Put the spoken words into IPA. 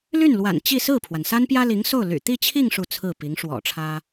l y˥˩ n l w a̰˨˩ n t͡ɕ i˥˧ s ɹ̩˥˩ pʰ w a˩ n s a˥ n p j ä˥ l i˧˥ ŋ s o˥˩ ʊ̯ l y̰˨˩ t̪ i˥˧ t͡ɕʰ i˥˧ ŋ ʂ u˥˧ t͡sʰ ɹ̩˥˩ p i˧˥ ŋ ʂ w ɔ̰˨˩ ʈ͡ʂʰ ä˥

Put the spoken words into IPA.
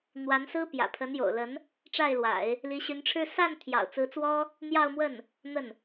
n̪ w a˧˥ n s ɹ̩˥ p j ä̰˨˩ pʰ ə˧˥ n j o̰˨˩ ʊ̯ l ə˧˥ n | ʈ͡ʂ a˥˩ ɪ̯ l w a̰˨˩˦ ɪ̯ | l i˧˥ ɕ y˧˥ n ʈ͡ʂʰ ɻ̩˥˧ s a˥˩ n t̪ʰ j ɑ̰˨˩ ʊ̯ t͡s ɹ̩˧˥ t͡s w ɔ˥ | n̪ j ɑ˥˧ ʊ̯ m w ə˥˩ n | n̪ ə˥˩ n

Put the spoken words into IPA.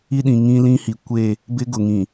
i˦ ɗ ĩ˨ ŋ ĩ˦ l ĩ˦ h i˨ kʷ e˦˨ | b ɪ˦ ɡ ʊ˨ ŋ ĩ˨

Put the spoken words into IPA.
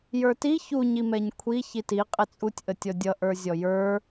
j ə˞ t i ç u ɲ i m ɛ ɲ kʷʰ i ç i t i qʼ ɪ t͡sʼ u tʲ ʔ ə tʲ ɔ dʲ ʌ ʔ ə˞ zʲ ɔ j ə˞

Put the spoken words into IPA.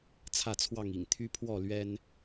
t͡sʰ ä˥˨ t͡sʰ w ɑ˥˨ ŋ ḭ˨˩ ŋ t̪ʰ y˦ pʰ w ɔ˥˨ l ɥ ɛ˦ n

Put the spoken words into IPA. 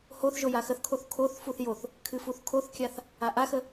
h o θ ʒ o j a x ə θ kʰ o θ kʰ o θ f u θ j o θ | kʰ ɨ f u θ kʰ o θ kʲ a θ | a ʔ a x ə

